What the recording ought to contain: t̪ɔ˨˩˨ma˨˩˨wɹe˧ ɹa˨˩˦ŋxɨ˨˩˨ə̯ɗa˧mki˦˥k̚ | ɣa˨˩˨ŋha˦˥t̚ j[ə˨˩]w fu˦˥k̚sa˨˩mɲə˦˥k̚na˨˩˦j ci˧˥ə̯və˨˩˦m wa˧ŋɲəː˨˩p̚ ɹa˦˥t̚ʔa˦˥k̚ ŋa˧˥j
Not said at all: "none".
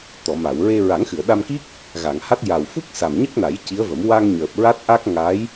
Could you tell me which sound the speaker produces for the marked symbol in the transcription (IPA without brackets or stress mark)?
a˨˩